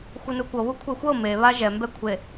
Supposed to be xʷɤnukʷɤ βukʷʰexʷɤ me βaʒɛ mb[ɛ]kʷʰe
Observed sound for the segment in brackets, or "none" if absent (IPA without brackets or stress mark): ɛ